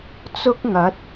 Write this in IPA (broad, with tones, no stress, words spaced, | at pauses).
t͡sʊ˥k̚ŋɐ˨˥t̚